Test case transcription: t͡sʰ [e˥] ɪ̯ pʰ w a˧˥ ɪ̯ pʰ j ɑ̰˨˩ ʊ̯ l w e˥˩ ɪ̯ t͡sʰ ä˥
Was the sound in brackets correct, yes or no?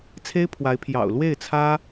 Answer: yes